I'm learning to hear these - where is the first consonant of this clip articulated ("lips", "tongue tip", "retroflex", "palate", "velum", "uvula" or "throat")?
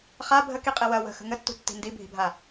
uvula